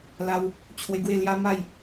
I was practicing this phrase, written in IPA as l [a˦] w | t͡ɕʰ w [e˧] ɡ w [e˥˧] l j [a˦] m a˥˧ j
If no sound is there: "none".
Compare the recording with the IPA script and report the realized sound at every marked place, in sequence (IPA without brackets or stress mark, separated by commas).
a˦, e˧, e˥˧, a˦